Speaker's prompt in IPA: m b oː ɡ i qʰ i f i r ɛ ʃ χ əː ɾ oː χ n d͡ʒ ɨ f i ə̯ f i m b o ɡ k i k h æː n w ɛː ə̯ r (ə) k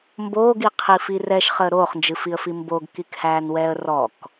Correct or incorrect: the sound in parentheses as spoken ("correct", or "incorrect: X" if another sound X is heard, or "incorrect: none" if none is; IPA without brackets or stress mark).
incorrect: ɔ